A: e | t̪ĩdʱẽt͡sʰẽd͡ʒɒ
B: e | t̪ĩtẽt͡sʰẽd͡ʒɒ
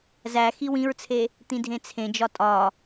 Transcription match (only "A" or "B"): A